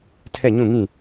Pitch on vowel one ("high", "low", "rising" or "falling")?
falling